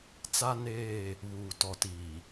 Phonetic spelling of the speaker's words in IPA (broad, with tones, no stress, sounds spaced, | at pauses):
t͡s a˦ n eː˦˨ | β uː˨ t ɔ˨ t iː˨